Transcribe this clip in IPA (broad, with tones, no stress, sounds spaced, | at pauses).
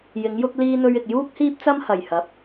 j ɪ˨˥ ŋ j ʊ˥ k̚ l iː˥ n̪ ɵ˥ ɥ ɪ˧ k̚ j uː˥ k̚ h iː˥ p̚ t͡s ɐ˥ m h ɐ˨˩ j h ɐ˨˥ p̚